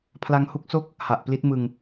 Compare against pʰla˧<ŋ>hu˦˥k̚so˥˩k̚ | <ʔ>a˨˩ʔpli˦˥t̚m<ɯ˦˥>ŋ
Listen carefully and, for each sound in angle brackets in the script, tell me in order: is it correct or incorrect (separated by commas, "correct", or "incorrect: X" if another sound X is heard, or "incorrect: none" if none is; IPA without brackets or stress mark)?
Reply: correct, incorrect: h, incorrect: ɯ˧